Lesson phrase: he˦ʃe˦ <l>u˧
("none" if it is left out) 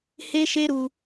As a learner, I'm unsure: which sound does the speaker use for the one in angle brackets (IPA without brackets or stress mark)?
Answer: ɾ